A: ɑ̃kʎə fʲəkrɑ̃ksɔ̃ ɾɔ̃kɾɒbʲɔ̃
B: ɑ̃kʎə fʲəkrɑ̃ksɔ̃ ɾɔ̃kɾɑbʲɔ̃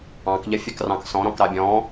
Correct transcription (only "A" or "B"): B